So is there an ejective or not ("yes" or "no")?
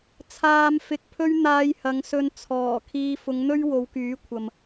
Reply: no